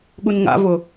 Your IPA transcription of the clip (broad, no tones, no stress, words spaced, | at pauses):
ɠunŋa̰vʊ